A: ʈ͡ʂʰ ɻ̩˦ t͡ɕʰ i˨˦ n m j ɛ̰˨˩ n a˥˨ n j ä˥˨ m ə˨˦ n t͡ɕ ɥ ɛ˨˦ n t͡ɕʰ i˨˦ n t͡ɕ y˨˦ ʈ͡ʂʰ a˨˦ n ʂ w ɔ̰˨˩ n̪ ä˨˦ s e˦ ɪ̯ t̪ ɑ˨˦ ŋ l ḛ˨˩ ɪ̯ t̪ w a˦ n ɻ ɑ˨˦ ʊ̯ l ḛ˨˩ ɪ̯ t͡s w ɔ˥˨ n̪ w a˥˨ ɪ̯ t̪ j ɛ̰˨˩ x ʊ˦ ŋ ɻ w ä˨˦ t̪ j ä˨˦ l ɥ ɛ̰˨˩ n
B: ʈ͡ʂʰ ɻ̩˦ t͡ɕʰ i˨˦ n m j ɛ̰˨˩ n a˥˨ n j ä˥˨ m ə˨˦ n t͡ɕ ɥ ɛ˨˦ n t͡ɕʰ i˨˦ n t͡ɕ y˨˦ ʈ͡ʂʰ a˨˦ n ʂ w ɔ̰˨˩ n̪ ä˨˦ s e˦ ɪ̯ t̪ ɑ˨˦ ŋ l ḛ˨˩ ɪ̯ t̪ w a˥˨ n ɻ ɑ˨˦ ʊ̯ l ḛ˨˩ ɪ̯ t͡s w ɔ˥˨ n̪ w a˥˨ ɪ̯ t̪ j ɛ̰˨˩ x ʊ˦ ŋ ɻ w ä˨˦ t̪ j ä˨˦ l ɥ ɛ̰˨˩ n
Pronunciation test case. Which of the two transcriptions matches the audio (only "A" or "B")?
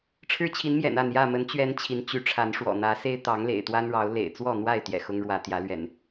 A